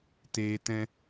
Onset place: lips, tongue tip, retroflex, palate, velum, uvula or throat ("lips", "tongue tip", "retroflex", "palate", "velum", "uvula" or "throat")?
tongue tip